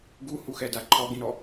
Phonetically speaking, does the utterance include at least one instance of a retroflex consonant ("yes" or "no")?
no